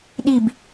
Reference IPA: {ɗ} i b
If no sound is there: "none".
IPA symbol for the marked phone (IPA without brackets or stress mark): ɗ